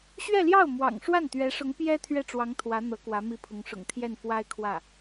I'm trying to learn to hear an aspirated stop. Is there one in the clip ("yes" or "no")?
yes